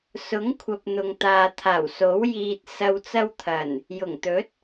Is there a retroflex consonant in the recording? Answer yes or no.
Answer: no